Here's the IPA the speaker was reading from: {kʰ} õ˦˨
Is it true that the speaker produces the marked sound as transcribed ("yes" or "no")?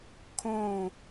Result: yes